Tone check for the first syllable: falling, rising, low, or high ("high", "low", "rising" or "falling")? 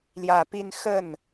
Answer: low